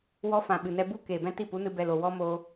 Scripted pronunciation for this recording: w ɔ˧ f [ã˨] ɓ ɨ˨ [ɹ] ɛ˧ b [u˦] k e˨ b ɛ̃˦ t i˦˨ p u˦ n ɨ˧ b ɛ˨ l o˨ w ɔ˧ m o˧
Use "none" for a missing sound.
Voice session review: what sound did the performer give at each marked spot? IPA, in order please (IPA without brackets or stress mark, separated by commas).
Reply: ã˨, n, u˦